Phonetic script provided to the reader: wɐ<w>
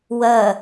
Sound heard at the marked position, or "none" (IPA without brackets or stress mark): none